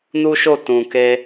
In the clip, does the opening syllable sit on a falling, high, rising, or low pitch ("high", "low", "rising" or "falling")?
high